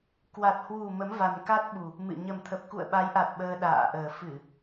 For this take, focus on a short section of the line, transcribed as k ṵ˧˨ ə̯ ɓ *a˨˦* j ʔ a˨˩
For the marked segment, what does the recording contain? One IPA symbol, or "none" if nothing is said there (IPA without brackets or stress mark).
a˨˦